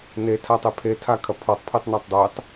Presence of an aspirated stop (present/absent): present